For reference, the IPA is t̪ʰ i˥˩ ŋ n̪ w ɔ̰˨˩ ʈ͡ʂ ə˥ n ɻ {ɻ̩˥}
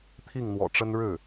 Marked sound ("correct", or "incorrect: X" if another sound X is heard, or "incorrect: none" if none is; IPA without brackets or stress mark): incorrect: ɻ̩˥˩